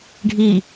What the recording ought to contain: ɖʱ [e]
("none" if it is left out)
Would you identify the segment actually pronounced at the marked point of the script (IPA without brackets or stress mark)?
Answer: i